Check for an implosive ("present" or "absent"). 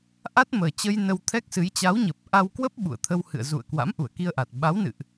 present